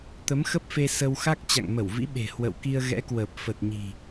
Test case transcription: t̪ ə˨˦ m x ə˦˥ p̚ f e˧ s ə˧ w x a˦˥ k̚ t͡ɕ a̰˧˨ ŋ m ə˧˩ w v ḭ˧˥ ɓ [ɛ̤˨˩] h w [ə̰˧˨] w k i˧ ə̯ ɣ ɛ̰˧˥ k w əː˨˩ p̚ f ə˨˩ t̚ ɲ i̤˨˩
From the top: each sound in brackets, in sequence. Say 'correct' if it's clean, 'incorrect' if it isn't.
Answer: incorrect: e̤˨˩, correct

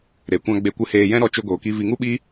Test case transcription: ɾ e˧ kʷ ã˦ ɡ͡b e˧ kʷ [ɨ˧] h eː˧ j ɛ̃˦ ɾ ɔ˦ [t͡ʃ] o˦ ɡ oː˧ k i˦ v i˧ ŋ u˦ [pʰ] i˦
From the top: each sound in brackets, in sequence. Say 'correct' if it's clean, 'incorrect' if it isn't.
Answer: correct, correct, incorrect: ɓ

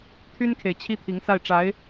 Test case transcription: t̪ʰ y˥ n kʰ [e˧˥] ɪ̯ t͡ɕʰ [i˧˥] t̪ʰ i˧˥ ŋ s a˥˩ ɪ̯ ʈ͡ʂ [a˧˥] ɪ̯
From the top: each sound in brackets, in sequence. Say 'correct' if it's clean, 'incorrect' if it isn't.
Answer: incorrect: e˨, incorrect: i˥, correct

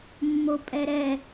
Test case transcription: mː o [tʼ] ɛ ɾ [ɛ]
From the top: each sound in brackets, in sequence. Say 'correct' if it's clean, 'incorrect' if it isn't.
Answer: incorrect: pʼ, correct

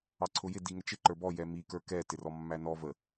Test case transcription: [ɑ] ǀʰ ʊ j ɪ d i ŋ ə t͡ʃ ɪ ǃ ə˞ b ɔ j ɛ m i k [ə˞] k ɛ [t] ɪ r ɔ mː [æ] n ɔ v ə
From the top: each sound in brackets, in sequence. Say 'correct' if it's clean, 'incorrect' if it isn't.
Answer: correct, correct, correct, correct

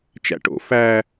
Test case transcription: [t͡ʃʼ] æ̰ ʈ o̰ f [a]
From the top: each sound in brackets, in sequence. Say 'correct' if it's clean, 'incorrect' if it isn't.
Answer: incorrect: t͡ʃ, incorrect: æ

